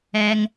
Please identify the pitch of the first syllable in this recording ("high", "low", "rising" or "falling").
low